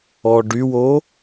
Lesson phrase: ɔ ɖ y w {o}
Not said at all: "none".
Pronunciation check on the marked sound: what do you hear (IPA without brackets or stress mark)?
o